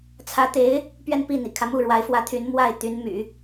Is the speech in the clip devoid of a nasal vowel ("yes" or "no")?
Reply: yes